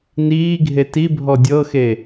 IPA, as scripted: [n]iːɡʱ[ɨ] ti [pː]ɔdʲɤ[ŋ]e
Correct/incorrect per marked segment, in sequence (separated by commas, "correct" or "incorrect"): correct, incorrect, incorrect, incorrect